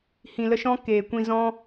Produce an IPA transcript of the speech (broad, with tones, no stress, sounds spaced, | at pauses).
h ĩ˨ l ə˧ ʃ ɔ̃˦ k eː˨ kʷ ĩ˧ z ɔ̃˦